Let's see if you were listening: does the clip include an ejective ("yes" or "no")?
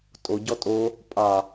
yes